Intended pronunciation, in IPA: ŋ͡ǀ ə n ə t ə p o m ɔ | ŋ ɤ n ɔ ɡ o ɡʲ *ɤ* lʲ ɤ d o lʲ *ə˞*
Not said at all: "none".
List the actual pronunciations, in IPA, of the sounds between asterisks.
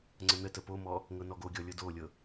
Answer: ɔ, ɤ

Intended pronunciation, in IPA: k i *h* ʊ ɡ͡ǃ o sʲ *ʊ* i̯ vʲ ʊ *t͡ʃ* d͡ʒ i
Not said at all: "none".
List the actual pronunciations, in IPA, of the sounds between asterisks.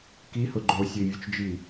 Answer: h, ə, t͡ʃ

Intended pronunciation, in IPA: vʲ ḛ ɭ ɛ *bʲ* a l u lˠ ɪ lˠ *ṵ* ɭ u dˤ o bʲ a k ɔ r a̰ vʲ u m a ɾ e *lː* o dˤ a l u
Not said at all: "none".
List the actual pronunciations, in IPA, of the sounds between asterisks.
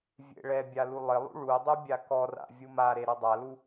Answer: bʲ, ṵ, ɾ

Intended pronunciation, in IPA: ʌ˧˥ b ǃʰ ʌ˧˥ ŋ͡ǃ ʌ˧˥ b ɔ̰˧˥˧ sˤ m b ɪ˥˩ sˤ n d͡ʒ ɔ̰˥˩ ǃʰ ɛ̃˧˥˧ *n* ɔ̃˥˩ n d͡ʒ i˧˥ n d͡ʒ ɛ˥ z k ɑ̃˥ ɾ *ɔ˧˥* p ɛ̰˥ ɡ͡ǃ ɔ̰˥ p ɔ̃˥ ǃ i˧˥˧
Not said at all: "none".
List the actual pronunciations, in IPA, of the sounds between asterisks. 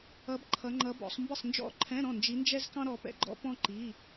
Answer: ɾ, ɔ˧˥

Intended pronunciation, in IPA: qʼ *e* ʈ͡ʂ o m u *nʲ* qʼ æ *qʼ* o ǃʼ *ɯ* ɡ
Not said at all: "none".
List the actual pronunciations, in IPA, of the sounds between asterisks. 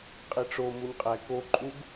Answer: i, nʲ, k, u

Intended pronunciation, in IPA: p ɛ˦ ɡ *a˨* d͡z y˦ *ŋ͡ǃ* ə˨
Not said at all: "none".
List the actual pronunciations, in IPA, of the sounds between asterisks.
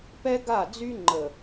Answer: a˦˨, ŋ͡ǃ

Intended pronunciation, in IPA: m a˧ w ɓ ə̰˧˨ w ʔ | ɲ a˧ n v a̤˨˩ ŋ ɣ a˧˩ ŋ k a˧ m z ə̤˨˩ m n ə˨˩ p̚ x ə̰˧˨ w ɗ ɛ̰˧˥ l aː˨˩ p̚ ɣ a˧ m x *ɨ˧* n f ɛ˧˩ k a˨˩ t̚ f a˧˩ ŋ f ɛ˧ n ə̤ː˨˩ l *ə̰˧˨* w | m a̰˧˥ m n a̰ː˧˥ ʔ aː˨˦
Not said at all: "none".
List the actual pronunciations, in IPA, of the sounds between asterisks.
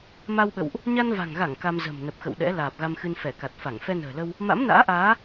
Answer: ɨ˧, ə˧

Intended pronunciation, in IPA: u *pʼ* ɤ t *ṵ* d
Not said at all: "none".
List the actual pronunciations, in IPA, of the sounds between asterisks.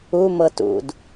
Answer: m, ṵ

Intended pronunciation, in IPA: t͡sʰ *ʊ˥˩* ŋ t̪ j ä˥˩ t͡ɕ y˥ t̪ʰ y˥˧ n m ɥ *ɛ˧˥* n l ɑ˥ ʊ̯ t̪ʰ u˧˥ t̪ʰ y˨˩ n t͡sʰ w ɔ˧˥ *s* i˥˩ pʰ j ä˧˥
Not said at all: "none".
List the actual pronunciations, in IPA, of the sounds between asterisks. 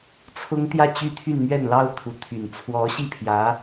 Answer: ʊ˥, ɛ˥˩, ɕ

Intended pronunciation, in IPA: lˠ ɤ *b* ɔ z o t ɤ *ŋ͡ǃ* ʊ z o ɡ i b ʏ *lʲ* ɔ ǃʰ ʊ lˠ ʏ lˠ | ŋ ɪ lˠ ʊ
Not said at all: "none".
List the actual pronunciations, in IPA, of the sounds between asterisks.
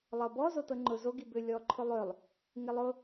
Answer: b, ŋ͡ǃ, lʲ

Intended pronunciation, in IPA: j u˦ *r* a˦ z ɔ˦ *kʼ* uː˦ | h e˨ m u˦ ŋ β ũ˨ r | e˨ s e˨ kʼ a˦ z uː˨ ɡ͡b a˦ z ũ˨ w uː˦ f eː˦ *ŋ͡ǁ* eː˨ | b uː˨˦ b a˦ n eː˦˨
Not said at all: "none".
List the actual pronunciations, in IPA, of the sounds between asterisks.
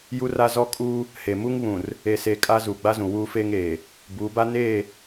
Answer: r, kʼ, ŋ

